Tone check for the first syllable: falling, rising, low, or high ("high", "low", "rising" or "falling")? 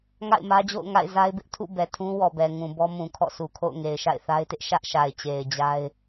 falling